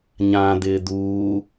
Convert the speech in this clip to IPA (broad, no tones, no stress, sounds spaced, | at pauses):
ɲ ã d̪ ɪː d̪ uː